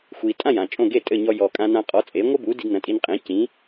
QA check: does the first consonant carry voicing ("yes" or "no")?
no